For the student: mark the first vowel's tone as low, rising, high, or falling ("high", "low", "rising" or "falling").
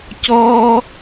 high